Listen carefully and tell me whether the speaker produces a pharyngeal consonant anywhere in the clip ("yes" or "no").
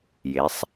no